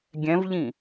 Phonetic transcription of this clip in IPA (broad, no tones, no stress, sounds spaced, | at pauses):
ɡʲ ɛ̃ v ʎ ĩ